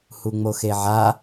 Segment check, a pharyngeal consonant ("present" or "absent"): present